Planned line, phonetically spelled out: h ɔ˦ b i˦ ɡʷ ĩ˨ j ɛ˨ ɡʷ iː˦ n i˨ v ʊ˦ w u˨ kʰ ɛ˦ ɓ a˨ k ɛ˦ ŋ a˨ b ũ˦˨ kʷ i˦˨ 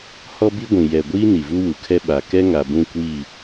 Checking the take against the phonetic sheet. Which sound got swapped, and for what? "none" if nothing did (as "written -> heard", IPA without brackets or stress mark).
ʊ˦ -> u˦